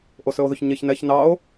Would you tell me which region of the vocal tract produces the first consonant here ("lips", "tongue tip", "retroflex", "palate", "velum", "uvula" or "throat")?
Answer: throat